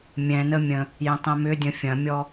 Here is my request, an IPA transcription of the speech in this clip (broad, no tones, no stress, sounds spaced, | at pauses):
mʲ ɛ̃ n ə mʲ ə̃ | j ə̃ tˤ ɛ̃ m ʏ dʲ ə̃ fʲ ɐ̃ mʲ ɔ